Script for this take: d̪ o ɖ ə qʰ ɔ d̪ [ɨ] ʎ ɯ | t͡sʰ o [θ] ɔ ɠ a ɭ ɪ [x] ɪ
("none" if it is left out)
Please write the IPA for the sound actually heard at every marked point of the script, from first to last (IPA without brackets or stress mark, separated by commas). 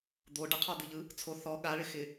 ɨ, θ, x